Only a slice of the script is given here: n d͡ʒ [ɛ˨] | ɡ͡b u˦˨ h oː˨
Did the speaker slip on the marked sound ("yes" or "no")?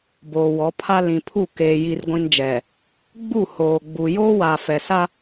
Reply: no